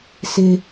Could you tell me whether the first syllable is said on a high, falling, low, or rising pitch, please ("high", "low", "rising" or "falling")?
low